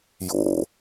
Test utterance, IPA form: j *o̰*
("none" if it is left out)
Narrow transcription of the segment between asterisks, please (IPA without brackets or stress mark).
o̰